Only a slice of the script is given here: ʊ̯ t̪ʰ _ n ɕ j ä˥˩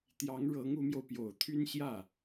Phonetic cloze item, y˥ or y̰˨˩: y˥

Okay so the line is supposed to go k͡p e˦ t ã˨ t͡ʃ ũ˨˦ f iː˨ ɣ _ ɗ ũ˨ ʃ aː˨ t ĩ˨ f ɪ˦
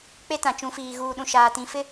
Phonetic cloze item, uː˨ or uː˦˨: uː˨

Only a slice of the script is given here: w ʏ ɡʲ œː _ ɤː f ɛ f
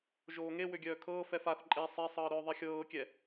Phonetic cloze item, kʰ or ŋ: kʰ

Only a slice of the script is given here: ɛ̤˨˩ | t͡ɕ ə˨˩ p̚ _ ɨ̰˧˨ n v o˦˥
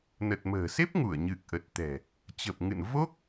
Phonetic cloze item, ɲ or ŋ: ŋ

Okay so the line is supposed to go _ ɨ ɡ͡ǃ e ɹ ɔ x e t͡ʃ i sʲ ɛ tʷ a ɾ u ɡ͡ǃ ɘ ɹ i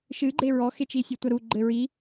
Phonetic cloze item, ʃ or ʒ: ʃ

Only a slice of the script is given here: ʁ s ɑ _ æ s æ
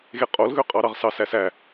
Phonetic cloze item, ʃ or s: s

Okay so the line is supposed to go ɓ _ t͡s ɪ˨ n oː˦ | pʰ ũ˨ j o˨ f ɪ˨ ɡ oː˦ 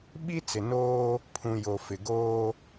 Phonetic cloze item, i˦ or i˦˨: i˦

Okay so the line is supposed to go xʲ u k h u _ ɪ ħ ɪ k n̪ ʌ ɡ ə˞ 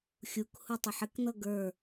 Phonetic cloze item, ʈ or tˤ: tˤ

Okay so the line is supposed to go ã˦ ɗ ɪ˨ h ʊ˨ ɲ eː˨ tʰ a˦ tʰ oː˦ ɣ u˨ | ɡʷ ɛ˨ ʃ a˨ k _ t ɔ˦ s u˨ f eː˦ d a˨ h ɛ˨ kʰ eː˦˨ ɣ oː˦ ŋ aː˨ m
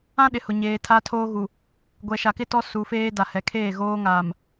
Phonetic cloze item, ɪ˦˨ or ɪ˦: ɪ˦˨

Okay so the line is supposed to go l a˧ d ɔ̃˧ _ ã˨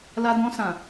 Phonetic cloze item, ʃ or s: s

